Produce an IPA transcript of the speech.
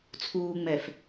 t͡sʰ uː ŋ͡m ɛ f

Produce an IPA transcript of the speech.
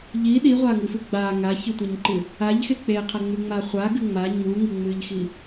ʎ i ɗ i ʁʷ a ŋ ɨ f ɨ ɡ͡b a ŋ a ç ɨ tʷ ɐ ɲ ǃ ɨ | a ʎ x e k͡p e qʰ ɐ ŋ͡m ʉ ŋ͡m a χʷ a ɡ ɨ ŋ͡m a ɲ u ŋ i ŋ͡m ɨ ʎ x i

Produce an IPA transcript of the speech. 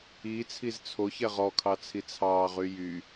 i t͡sʰ i z t͡sʰ o ç ɛ ʁ ɔ kʰ ɑ t͡sʰ i t͡sʰ ɑː ʁ y j y

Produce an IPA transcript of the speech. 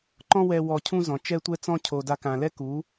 ǃ ɔ̃˦ w ɛ˧ w ɔ˧ cʰ ũ˦ z ɔ̃˨ t͡ʃ ɛ˦ tʷ ɛ˦ t͡s ɔ̃˦ cʰ o˨ d a˧ k ã˨ l ɛ˦ k u˨˦

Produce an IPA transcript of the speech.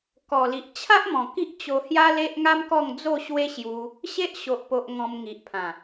k ɔ˨˩ l i˨ ʔ t͡ɕʰ a˦ ʔ m ɔ̃˨˩ k i˦ ʔ t͡ɕ o˧ h j a˦ l e˦ ʔ ŋ a˦ m k ɔ˥˧ ŋ d͡z o˥˧ ɕ w e˦ ɕ j u˧ | ɕ e˦ ʔ ɕ o˨ ʔ p o˨ ʔ ŋ ɔ̃˧ m ŋ i˨ ʔ pʰ ã˨˩

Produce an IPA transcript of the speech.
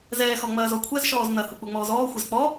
z ɛː x ɔ ŋ͡m ɐː z ɔ kʷʰ ɛ z ʃ ɔː z n ɐ h u k͡p u ŋ͡m ɔː z ɔː xʷ ɛ z k͡p ɔ

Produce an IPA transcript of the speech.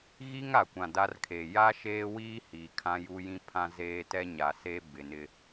ɣ i˦ ŋ a˨ kʷ ã˨ d a˦ r kʰ e˨ j a˦ ʃ eː˦ w iː˦ h iː˨ kʰ ã˦ j u˦ j ĩ˦ pʰ ã˦ z eː˦ t ɛ˦ ɲ a˨ s e˦ b ɪ˨ n ɪ˦

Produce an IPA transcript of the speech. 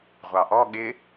ʁʷ ɑ ʔ ɔ ɠ ɪ

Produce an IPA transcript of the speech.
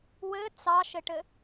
w ɘ t͡s ɑ ʃ ɘ ʈ ɘ

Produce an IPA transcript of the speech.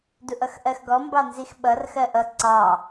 d u ʔ ʌ x ʔ ɜ x ɡ ɔ m b ɑ n z i x ɓ ʌ r x ɜ ʔ ʌ ǀ ɑ

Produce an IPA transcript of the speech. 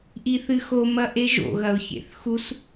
ʔ i θ ɨ x o m ɐ ʔ e ʒ o̰ ɣ ɐ ʊ̯ ç ḛ θ x u s

